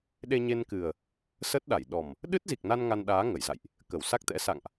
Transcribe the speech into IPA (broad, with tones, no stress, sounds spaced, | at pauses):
ɗ e˧ ɲ e˧ n k ɨ˨˩ ə̯ | s ə˦˥ t̚ ɗ a˧˩ j ɗ ɔ˨˩ m | ɗ ɨ˦˥ t̚ z i˨˩ k̚ n a˧ n ŋ a˧ n ɗ aː˨˦ ŋ ə˧˩ j z a̰˧˨ j ʔ | k ə˧˩ w s a˦˥ k̚ t̪ ɛ̰˧˥ s a̰˧˨ ŋ ʔ